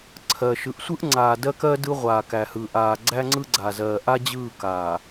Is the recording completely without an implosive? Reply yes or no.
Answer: yes